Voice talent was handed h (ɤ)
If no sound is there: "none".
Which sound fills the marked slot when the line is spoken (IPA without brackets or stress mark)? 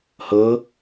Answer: ɤ